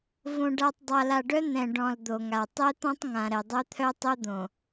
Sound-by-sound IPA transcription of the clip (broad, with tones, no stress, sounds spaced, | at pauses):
v õ˨ ɖ a˨ tˤ dˤ a˨ l a˨ ɖ œ˦ n̪ ɛ̃˨ ɖ ɔ̃˨ l d̪ o˨ ŋ a˨ tˤ ɛ˦ t̪ ɔ̃˦ tˤ ŋ ã˨ ɾ ɛ˨ dˤ œ˦ t̪ʰ œ˦ tˤ o˦ d̪ õ˨